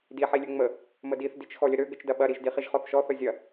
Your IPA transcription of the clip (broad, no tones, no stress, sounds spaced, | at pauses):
d i ħ i lʲ ø ŋ͡m ə | m ə d i θ d i t͡ʃ x ɔ lʲ ə ɾ ø ɡ ə t͡ʃ d ɐ ɓ ɐ ɾ i ʒ d i χ i ʒ χ ɔ θ ʃ ɔ θ ə zʲ ɐ